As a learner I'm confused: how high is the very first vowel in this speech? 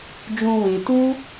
high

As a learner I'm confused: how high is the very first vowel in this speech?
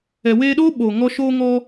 mid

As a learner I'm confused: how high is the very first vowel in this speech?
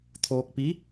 mid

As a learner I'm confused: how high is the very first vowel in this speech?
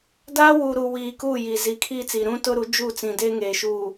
low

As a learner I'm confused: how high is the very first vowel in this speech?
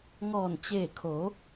mid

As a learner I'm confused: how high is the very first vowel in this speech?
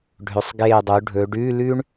mid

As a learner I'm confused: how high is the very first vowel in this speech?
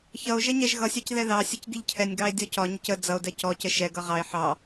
mid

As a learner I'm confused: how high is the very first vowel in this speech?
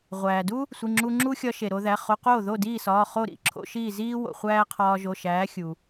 low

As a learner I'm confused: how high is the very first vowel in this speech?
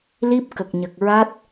high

